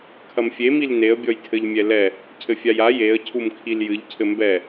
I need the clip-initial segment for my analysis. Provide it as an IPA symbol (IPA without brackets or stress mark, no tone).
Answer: kʰ